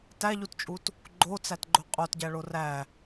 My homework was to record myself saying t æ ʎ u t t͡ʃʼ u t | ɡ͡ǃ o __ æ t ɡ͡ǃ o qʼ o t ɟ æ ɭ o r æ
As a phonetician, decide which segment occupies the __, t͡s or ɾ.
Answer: t͡s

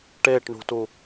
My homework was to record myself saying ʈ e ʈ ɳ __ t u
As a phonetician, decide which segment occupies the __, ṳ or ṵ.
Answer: ṳ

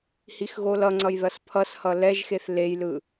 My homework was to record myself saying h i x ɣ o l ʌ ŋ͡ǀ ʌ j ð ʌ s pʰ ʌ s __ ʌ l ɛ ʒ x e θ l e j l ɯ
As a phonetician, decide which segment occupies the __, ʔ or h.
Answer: h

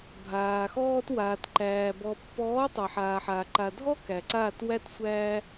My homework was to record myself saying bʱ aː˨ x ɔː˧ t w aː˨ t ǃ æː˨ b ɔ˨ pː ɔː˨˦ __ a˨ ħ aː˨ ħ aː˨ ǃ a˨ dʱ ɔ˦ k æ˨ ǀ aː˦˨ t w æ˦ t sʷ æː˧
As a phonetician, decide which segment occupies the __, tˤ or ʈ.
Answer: tˤ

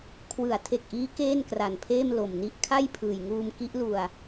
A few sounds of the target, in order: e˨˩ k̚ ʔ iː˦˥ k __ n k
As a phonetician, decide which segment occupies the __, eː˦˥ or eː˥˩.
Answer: eː˥˩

